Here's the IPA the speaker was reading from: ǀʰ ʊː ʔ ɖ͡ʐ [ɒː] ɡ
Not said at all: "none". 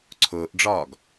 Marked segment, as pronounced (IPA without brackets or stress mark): ɒː